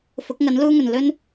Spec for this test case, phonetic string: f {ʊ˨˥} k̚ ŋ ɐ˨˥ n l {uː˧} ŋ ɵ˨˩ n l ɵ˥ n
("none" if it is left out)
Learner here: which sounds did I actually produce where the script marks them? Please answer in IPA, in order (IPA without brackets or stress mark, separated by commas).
ʊ˨˥, uː˥